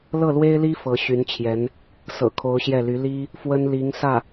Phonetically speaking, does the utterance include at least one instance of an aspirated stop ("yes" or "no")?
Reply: yes